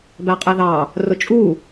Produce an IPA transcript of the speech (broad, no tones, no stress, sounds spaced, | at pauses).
b æ qʼ ɛ ð ɑ | r ʊ t͡ʃʼ u